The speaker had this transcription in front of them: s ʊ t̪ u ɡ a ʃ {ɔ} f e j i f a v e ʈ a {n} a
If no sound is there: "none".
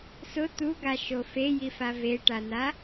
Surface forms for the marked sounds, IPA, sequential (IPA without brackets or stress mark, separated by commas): o, n